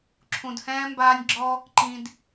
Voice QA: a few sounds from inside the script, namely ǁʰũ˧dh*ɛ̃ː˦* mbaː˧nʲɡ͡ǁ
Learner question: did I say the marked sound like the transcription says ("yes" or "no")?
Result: yes